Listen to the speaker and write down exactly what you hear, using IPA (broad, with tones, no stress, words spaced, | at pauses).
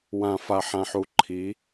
wã˨fa˨ħã˨ħu˨ ǃʰi˨˦